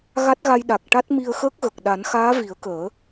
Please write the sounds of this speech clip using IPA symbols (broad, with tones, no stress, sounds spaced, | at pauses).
ɣ a˦˥ t̚ ɣ a˧ j ɗ a˨˩ k̚ ʈ a˦˥ t̚ m i˧ ə̯ x əː˦˥ k̚ ɣ ə˨˩ k̚ ɗ a˨˩˦ n x aː˧˥ v i˨˩˦ ə̯ k əː˨˩˦